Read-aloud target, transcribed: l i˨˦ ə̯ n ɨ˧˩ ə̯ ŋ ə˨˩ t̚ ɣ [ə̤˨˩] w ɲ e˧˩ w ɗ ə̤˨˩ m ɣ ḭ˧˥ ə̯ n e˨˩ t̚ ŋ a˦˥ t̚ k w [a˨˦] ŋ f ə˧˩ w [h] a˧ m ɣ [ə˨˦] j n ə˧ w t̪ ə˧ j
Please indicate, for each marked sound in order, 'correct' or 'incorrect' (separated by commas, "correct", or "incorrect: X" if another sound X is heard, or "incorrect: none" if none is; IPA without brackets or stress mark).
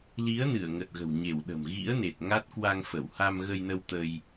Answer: correct, incorrect: a˧, correct, incorrect: ə˧